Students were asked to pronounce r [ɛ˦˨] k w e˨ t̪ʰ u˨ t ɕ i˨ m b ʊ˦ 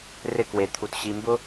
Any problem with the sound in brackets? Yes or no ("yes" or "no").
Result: yes